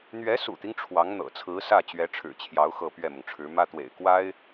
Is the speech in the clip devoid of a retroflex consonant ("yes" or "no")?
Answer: no